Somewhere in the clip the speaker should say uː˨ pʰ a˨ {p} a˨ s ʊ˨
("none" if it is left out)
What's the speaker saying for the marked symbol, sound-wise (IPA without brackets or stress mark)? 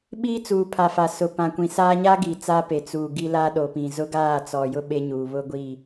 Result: f